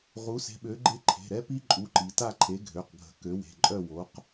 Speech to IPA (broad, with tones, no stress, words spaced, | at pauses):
ʁu˨˥se̤˨˥ɓø˨˥ɡ͡ǃe˥˧ ǃʰe̤˩˧˩ɾɛ˦˥pi˦˥ ǃʼu˨˥ǃi˩˧ ta˥˧ǃʰe˨˥ ɡʱø˩˧˩qɡʱə̤˨˥ kø˨˥we̤˩˧˩ǃʼœ˥˧ wo˨˥q